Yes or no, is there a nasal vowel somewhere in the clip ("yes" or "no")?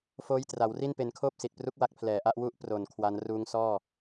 no